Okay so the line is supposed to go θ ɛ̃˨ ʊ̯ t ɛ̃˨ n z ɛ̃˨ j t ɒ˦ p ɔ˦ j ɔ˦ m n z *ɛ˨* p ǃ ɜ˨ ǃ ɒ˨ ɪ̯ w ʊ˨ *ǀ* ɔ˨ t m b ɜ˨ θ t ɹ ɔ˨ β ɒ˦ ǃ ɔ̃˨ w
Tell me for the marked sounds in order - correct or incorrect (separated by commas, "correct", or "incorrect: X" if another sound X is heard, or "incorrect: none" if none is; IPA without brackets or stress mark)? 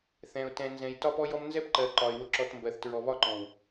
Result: incorrect: ɛ˦, incorrect: ǁ